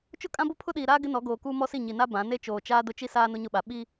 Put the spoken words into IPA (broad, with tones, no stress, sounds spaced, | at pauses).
t͡ʃ ʊ˦ kʼ ã˦ b o˦ pʰ ʊ˦ ɗ iː˨ ɾ aː˦ ɡ ɪ˦ n ɔ˨˦ ɡ oː˨ k uː˦ m ɔ˦ s i˦˨ ɲ i˨ n a˦ b ã˨˦ n e˦ t͡ʃ oː˨ t͡ʃ aː˦ d ʊ˦ t͡ʃ i˦ s aː˦ n ʊ˦ ɲ ʊ˦ ɓ a˨ ɓ i˦